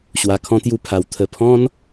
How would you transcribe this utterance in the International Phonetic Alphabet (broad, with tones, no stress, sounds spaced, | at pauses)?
ɕ w a˨˩ kʰ ɔ̃˧ t̪ j u˧ pʰ a˨˩ w t̪ʰ ə˨˩ pʰ ɔ̃˧ n